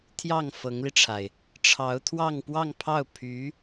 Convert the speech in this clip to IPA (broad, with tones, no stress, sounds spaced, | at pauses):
t̪ʰ j ɑ˥˩ ŋ f ɤ˧˥ ŋ l i˧ ʈ͡ʂʰ a˩ ɪ̯ | ʈ͡ʂʰ ɑ˧˥ ʊ̯ t̪ʰ w ɑ˥˧ ŋ p w ɑ˥˧ ŋ pʰ ɑ˥˩ ʊ̯ pʰ y˧˥